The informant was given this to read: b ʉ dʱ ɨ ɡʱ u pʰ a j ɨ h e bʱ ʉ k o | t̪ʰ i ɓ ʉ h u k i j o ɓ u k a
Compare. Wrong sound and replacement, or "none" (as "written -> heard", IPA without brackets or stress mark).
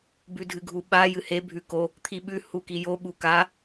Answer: pʰ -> ɓ